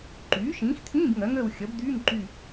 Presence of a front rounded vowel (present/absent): present